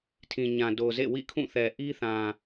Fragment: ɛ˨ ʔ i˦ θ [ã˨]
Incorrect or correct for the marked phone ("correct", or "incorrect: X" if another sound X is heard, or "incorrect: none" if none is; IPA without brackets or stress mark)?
correct